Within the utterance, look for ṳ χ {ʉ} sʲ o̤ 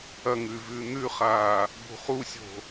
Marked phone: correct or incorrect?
incorrect